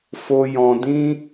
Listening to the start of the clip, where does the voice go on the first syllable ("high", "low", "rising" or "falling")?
high